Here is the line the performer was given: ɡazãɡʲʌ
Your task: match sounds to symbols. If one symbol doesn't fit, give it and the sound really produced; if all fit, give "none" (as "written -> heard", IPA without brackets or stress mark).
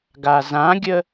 ʌ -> ə